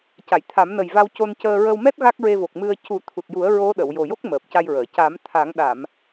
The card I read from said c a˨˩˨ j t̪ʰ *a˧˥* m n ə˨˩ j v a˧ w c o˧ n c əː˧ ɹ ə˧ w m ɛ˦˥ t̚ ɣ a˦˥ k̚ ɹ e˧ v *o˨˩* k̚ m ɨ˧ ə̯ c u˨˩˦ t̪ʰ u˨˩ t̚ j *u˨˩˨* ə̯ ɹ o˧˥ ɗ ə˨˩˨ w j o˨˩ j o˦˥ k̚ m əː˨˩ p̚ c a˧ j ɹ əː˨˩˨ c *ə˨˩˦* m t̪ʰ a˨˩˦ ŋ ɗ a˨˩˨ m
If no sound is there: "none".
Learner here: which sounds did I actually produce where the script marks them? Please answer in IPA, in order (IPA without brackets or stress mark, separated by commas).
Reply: a˨˩˦, o˨˩, u˨˩˦, a˨˩˦